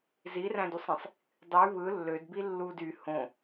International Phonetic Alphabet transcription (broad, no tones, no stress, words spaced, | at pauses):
ziræ̃dusˤĩsˤ | dˤy βɯ lːødbi lːud y hõ